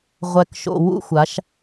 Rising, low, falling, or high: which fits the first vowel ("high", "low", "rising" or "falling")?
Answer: low